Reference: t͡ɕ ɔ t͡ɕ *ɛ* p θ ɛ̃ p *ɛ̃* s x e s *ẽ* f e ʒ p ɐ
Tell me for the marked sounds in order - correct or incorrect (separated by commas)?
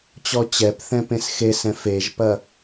correct, incorrect, incorrect